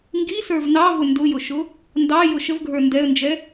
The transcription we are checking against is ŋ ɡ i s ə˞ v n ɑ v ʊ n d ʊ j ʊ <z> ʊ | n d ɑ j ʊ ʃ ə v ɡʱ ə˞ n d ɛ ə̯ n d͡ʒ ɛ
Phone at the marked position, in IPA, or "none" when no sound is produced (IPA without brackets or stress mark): ʃ